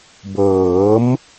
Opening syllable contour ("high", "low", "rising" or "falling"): rising